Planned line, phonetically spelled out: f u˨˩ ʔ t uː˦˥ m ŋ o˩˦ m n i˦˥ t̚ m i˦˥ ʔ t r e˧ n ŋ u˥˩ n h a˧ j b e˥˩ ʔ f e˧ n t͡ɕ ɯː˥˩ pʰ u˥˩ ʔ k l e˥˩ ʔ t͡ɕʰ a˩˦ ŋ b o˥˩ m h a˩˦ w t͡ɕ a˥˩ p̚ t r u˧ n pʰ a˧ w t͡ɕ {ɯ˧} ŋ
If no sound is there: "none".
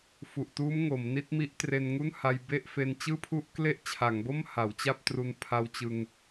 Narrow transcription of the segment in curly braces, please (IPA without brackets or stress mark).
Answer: ɯ˧